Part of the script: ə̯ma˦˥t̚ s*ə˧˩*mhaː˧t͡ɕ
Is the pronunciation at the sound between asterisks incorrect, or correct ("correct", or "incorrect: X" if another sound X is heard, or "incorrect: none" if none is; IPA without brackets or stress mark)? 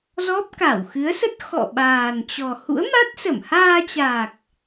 correct